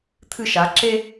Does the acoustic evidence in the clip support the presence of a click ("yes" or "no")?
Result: yes